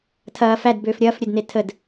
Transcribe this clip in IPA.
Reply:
tʰ ɐː f æ d b øː f ɾʲ ɐː f ɾʲ ø d n e tʰ ə d

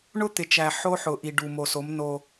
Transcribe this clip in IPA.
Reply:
ɳ ʊ˦ t̪ ɪ˨ t͡ʃ æ˨ ħ o˦ ħ ʊ˨ ʔ i˨ ɖ u˨ m o˨ s o˨˦ m n o˦

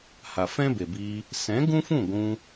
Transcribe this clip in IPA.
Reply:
h a˨ f ɛ̃˦ b e˨ b iː˧ | s ɛ̃˨˦ ɡ ũ˦ f ũ˦˨ ɡʷ ũ˧

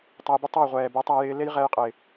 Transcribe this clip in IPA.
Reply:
tˤ a˧ j b ɪ˦ tˤ ʌ˦˨ j ʁʷ ɛː˨ b ɛ˨˦ tˤ a˧ j ɪː˧ l e˦ j ʁ ɛ˧ j qʼ ɪ˨

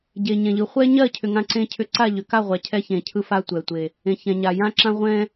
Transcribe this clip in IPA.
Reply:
ɟ e˨ ɲ ɛ̃˨ ʎ ɯ˨˦ χʷ ɛ˦ ɲ ɜ˦˨ cʰ ʏ˨ ŋ ã˦ ǀ ẽ˦ cʰ ʏ˦ ǀ a˦˨ ʎ ʏ˨ k a˦˨ ʁʷ a˨ cʰ ɛ˦ ç ẽ˨ cʰ ɯ˦ f a˦ tʷ ɛ˨ tʷ e˨ | ẽ˨ ç ɛ̃˨ ɲ a˨ j ã˦ ǁ ã˦ ʁʷ ɛ̃˦

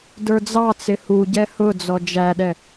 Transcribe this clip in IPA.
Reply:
d ə˞ d͡z ɑ t͡s ɪ h u ɟ ɛ h ʊ d͡z ɔ d͡ʒ æ ɗ ɛ

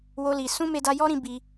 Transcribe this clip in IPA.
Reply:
w o˦ l i˧ s ũ˦ m e˦ d a˦ j ɔ˦ ɾ ĩ˧ b i˧

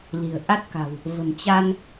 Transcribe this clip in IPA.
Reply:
l i̤˨˩ ə̯ ʔ a˦˥ t̚ k a̤˨˩ w | v ə̤˨˩ m t͡ɕ a˧ n

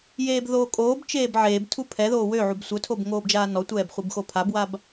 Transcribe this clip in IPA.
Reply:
j eː b ð oː kʼ oː b t͡ʃ eː b ʕ eː b tʰ u pʰ ɛ ð oː w ø ʕ u b sʷ œ tʰ o b ŋ oː b d͡ʒ aː n ɔ tʷ ɛː b χʷ i b x o pʰ a b w a b

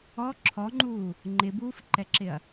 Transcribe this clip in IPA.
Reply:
ɔ ǁʰ ɔ ŋ͡ǃ uː | ŋ͡ǃ ɪ b uː f ǃ ɛ ǁ ɪ ɐ̯

